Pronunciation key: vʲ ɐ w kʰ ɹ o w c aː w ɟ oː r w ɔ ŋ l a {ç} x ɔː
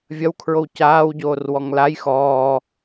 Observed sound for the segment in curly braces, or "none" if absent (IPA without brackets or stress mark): j